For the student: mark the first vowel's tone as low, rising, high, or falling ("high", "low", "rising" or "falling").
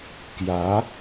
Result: rising